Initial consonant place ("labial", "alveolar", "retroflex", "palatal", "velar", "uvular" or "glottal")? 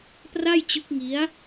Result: labial